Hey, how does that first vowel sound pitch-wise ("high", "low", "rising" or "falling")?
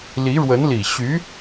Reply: rising